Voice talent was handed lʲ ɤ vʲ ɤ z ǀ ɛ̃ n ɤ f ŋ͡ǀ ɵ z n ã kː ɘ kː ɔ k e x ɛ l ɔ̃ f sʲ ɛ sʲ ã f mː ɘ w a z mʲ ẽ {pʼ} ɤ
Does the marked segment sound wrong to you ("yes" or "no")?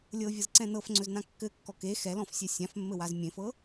yes